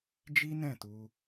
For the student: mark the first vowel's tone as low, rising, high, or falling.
high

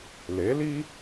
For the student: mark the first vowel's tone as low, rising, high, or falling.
rising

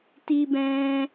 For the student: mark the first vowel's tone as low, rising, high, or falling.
high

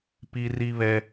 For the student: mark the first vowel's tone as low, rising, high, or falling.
low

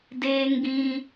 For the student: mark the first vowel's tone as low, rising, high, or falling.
high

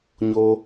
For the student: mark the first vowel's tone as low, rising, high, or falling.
low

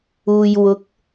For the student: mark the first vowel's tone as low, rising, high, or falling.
low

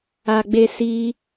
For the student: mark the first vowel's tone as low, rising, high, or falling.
low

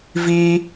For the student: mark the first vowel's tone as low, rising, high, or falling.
high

